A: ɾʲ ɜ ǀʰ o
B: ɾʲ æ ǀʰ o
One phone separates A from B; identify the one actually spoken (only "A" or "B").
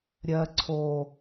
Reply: A